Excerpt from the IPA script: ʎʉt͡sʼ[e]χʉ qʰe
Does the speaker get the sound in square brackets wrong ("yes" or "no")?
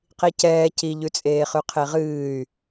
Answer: yes